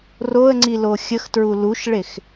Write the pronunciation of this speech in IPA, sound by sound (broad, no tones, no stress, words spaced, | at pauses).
roə̯ŋ͡ǀilo xʲəxtɹu luʃɭex